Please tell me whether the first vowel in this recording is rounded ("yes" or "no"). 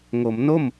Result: yes